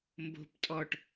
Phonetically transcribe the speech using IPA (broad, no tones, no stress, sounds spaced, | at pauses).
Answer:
m b o̤ p tʼ ɔ ʈ